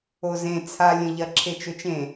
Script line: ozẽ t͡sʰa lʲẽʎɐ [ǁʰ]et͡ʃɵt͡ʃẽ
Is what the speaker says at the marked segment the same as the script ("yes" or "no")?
yes